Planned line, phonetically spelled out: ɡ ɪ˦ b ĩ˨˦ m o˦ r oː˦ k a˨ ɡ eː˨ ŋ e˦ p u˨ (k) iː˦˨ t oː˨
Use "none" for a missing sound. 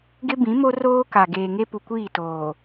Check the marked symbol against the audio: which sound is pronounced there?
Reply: kʷ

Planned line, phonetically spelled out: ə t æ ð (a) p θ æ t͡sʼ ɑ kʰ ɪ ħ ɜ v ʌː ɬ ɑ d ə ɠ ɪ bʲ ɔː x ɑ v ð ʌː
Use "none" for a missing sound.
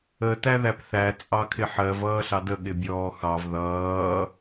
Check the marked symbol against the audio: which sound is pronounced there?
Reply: æ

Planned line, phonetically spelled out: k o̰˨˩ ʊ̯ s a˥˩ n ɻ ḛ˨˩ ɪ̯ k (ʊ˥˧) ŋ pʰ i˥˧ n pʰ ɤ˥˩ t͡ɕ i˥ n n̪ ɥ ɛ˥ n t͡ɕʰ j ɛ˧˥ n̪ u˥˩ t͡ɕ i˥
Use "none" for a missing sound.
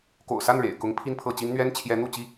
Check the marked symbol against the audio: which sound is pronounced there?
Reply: ʊ˧˥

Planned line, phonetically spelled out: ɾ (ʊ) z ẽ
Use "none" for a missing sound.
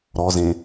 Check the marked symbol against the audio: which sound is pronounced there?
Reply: ɔ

